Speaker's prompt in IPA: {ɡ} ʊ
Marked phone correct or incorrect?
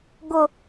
correct